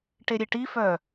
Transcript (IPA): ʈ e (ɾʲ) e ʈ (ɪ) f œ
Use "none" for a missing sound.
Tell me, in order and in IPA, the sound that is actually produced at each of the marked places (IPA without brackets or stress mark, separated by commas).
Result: ɾʲ, i